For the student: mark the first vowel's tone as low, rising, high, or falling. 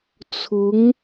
rising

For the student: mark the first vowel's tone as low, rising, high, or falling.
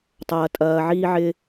high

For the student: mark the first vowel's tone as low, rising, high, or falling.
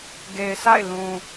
low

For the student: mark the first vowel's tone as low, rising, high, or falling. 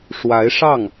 rising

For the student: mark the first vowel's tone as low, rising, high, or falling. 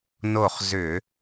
falling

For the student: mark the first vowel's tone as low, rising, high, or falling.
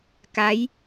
rising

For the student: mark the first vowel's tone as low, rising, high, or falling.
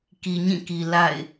low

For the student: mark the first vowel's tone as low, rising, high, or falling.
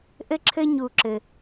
high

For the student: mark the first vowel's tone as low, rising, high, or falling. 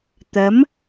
rising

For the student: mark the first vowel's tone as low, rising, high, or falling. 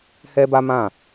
high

